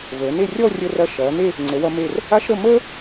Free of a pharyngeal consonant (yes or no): yes